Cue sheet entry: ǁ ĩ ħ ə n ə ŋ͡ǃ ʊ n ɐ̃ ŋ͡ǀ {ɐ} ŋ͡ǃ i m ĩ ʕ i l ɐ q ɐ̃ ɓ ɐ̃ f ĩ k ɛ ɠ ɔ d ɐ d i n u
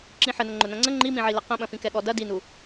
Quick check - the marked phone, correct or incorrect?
incorrect